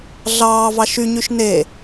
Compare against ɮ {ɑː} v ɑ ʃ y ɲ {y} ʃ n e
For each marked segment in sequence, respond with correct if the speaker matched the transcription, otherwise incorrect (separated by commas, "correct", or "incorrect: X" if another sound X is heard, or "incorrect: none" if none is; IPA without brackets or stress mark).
correct, correct